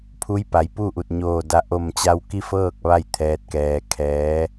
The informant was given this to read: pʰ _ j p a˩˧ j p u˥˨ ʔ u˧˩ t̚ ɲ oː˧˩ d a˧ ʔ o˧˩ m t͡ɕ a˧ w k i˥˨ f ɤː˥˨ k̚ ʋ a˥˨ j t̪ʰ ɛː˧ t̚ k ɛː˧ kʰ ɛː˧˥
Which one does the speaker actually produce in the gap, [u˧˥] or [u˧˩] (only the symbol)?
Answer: u˧˥